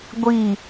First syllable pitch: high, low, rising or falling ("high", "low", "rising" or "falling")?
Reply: falling